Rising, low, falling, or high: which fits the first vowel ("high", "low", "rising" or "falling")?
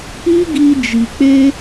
high